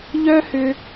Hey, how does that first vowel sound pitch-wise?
high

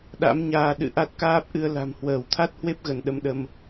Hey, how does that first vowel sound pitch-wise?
rising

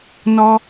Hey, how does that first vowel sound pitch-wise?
high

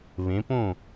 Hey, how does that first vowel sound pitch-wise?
rising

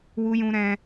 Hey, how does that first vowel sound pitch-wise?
high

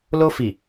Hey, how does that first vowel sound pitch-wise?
high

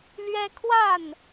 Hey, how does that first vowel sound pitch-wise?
high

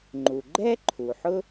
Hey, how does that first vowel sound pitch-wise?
low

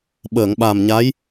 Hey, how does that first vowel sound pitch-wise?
low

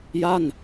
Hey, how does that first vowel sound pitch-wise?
falling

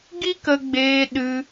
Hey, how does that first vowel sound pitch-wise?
high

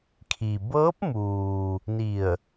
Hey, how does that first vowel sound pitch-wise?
low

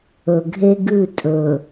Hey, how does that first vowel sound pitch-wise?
low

